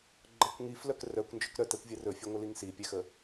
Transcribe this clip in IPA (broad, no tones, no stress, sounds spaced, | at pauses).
ɡ͡ǃ ə kʷ ŋ i f l œ k r œ kʷ n d͡ʒ ɵ k ɾ œ t ɛ kʷ vʲ ɛ r ɵ fʲ ɛ ŋʷ ə l i ŋ s i pʲ ɛ x ə